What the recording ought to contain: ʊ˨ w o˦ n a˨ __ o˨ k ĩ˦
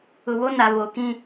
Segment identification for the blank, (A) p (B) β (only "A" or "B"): B